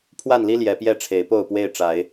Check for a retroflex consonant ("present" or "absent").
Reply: present